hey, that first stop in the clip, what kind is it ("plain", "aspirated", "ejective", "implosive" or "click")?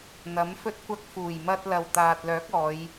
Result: plain